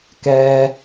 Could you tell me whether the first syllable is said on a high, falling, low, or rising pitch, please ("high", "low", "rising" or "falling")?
high